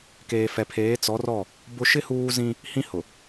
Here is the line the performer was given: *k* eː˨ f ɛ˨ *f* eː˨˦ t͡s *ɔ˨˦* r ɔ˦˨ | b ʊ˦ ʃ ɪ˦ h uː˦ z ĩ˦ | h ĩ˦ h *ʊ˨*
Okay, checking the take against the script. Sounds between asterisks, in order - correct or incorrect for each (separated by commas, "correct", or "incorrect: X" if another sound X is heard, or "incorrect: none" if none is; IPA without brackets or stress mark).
correct, incorrect: pʰ, correct, correct